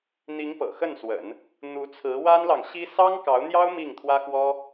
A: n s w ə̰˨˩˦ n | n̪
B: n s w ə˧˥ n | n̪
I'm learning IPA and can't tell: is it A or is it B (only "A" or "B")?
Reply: A